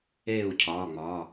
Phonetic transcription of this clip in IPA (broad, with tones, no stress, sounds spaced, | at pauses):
eː˥˨ u̯ cʰ ɒː˩˧˩ ŋ͡m ɒ˩˧˩